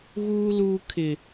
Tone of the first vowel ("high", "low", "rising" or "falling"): high